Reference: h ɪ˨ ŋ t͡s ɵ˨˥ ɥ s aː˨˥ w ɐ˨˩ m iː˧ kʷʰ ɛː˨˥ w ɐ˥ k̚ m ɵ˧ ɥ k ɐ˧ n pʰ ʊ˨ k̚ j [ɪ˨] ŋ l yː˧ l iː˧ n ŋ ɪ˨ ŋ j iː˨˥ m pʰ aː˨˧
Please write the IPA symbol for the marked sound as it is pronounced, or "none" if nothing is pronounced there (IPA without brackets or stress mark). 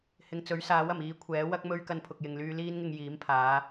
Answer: ɪ˨